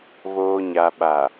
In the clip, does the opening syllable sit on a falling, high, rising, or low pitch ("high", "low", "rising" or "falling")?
low